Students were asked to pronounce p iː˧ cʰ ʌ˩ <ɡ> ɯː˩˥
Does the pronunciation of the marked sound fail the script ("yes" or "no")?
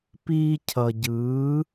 yes